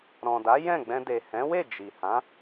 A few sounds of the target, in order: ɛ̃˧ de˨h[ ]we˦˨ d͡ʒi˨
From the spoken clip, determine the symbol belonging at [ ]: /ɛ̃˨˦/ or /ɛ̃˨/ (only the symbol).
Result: ɛ̃˨˦